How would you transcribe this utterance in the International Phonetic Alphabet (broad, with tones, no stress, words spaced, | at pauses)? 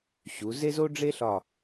ɕu˩˧ze˥z o˥ɖ͡ʐe˥ɬɒ˧˩